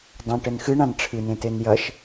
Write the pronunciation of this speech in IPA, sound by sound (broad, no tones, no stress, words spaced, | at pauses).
dˤãʈɘn xɨɳãn ʈ͡ʂʰɨnẽten jɐʃ